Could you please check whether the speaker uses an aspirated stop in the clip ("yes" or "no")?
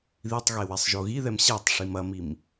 no